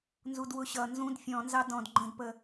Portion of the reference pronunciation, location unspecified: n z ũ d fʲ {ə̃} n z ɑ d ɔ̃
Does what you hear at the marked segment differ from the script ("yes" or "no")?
yes